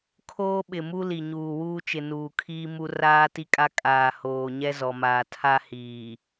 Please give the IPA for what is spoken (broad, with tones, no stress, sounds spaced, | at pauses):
kʰ oː˦ ɓ ɪ˨ m u˦ l i˨ ɲ uː˨ w uː˦ t͡ʃ ɪ˨ n uː˨ kʰ iː˦ m u˦ r aː˦ t i˦ kʼ a˦ kʼ aː˨ h oː˨ ɲ ɛ˦ z ɔ˨ m aː˨ tʰ a˦ h iː˨